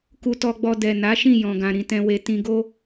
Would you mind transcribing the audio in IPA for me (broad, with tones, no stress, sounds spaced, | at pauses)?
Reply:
k u˧ t ɔ˧ ɡ͡b ɔ˧ d ɛ˨ n a˨˦ ʃ ĩ˦˨ j ɔ̃˨ ɡ ã˨ ɾ ĩ˨ t ɛ̃˧ w e˧ t ĩ˧ ɡ o˦